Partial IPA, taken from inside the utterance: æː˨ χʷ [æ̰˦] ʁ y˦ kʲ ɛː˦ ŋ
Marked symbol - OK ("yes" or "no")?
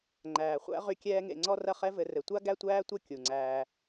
yes